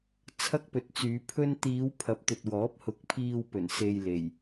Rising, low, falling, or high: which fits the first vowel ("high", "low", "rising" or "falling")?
high